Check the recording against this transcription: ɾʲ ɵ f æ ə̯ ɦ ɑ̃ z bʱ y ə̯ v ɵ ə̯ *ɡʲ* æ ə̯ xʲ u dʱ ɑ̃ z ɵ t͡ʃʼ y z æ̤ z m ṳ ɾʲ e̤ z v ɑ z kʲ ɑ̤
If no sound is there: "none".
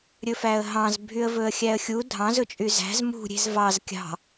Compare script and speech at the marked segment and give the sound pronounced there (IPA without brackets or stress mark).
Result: xʲ